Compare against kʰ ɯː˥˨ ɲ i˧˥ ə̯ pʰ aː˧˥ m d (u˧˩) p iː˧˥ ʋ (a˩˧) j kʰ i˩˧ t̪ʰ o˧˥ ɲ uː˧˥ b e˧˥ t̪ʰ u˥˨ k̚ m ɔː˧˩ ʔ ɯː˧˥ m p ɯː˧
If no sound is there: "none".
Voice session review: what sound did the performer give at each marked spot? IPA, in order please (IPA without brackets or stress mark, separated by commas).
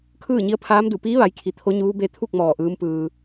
u˧˩, a˩˧